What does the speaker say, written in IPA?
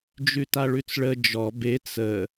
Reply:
d͡ʒ ʉ t a ɭ ʉ t͡s ɭ ə d͡ʒ ɔ b e t͡s ə

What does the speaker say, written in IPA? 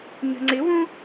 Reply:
ɲ ə̤ ŋ͡ǀ ɪ w ũ

